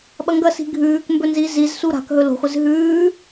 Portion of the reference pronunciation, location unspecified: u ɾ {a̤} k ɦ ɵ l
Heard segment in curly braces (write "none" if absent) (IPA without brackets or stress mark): a̤